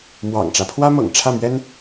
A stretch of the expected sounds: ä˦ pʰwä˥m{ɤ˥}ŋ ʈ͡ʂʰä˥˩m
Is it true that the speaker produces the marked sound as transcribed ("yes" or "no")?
no